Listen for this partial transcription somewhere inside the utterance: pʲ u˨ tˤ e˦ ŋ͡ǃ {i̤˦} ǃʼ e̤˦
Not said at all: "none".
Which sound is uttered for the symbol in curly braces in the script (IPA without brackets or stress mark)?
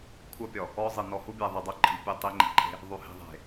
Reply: i̤˨